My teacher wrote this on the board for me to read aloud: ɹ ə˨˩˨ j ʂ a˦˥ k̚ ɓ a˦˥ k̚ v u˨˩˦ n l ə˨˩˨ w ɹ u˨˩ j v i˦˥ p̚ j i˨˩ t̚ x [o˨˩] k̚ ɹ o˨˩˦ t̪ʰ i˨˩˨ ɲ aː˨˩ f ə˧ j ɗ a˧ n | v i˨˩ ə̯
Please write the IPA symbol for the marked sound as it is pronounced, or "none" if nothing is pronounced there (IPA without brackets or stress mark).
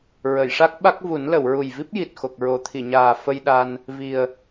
o˨˩